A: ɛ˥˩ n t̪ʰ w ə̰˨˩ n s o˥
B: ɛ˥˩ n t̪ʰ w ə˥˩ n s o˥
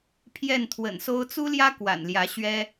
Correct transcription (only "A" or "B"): A